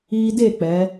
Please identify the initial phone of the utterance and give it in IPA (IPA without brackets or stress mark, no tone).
iː